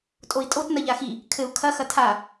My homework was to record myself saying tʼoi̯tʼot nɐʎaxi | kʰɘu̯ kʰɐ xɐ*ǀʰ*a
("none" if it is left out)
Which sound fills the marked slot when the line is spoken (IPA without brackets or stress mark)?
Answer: tʰ